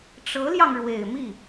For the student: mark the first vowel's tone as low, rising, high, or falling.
rising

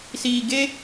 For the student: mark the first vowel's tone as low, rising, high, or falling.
low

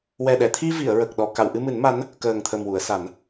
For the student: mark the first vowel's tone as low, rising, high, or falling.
low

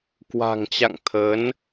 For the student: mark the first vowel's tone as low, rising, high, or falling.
low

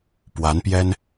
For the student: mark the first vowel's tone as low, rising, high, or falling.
rising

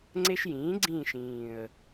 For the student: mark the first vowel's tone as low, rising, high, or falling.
high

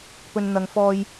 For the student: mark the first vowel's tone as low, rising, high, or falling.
low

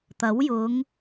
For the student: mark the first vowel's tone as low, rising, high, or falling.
rising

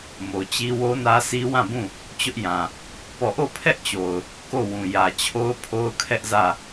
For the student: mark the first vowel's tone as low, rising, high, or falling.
low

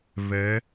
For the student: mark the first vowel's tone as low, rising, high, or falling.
rising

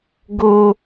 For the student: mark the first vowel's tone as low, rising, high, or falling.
high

